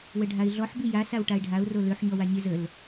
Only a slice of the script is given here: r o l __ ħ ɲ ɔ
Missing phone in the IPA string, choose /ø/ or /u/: ø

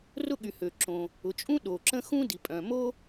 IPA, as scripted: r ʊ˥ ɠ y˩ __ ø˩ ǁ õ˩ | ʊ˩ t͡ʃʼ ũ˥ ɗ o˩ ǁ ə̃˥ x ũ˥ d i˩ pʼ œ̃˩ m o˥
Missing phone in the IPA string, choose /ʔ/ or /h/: h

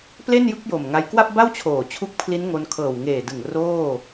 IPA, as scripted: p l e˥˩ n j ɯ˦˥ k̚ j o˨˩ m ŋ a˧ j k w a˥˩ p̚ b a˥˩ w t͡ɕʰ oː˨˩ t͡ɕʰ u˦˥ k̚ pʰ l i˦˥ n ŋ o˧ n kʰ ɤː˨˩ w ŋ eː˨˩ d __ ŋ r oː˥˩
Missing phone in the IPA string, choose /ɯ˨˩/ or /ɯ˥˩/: ɯ˨˩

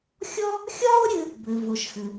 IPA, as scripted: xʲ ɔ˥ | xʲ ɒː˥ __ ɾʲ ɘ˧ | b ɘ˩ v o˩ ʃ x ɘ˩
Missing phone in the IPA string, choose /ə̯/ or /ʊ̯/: ʊ̯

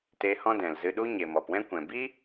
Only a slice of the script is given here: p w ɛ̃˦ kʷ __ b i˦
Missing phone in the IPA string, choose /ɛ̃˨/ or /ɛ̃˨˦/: ɛ̃˨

